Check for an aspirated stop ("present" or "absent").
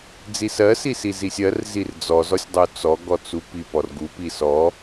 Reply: absent